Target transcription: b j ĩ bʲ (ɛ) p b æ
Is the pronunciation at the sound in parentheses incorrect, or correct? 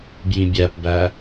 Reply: incorrect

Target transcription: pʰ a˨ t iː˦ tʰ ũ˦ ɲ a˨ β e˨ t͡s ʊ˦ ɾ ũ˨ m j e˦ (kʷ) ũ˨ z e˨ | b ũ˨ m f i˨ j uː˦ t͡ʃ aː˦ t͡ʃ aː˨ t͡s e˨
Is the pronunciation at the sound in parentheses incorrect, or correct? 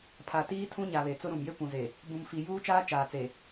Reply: correct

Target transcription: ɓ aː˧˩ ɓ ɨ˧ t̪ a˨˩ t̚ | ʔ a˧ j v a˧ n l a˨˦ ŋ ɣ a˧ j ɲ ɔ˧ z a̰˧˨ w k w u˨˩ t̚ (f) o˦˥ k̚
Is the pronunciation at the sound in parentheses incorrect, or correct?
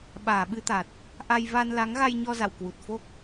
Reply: correct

